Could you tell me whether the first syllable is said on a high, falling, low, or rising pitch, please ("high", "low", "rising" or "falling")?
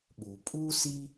low